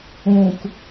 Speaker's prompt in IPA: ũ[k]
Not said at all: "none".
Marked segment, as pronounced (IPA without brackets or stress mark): k